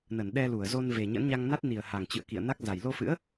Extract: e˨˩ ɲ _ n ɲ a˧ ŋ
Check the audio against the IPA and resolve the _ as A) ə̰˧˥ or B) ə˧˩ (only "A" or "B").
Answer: A